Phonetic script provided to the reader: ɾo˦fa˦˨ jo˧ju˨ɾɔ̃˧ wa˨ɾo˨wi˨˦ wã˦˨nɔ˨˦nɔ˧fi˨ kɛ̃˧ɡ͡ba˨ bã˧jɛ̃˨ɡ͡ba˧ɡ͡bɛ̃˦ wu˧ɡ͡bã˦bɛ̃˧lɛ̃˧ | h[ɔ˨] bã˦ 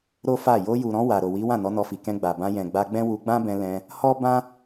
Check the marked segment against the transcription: incorrect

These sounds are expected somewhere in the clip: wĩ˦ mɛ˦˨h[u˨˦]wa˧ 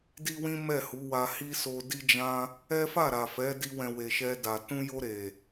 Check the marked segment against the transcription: correct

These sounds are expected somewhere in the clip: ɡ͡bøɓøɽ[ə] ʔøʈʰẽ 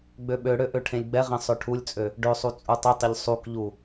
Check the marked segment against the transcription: incorrect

